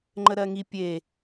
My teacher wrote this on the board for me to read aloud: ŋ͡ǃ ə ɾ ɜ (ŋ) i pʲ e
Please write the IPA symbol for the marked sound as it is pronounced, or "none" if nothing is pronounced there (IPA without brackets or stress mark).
ŋ